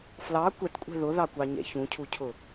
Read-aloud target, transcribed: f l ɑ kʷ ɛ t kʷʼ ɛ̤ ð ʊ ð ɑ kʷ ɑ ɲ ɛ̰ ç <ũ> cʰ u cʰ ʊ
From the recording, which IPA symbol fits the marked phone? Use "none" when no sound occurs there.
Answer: ũ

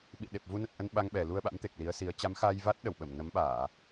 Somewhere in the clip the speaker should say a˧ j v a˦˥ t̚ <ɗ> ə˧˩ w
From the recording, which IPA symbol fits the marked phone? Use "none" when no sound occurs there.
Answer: ɗ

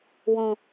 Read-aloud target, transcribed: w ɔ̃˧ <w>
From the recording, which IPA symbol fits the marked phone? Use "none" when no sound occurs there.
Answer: none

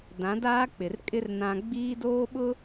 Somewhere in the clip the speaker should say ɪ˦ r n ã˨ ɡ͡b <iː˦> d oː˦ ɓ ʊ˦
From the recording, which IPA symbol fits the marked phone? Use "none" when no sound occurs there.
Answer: iː˦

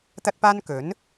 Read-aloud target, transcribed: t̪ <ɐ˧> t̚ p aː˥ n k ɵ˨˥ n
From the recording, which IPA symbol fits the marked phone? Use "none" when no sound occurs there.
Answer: ɐ˥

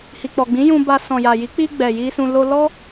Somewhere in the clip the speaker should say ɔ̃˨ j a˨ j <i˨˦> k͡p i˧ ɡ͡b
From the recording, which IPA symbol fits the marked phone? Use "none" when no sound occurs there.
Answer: i˨˦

